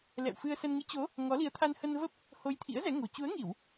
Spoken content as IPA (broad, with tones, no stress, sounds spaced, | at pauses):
l ɛ̰˧˨ w f ɨ˧ ə̯ s ə˧ n ŋ ɨ˨˦ t͡ɕ o˨˦ | ŋ ɔ˨˦ l i˨˦ ə̯ t̪ʰ a˧ n h ə˧ n v ə˦˥ p̚ | h o˧ j t̪ʰ ḭ˧˥ ə̯ z ɛ˨˦ ŋ o̤˨˩ t͡ɕ u˨˦ ə̯ ŋ i˧˩˨ w